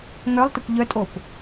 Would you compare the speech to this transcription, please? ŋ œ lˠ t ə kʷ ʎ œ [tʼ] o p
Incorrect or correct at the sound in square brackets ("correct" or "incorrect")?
correct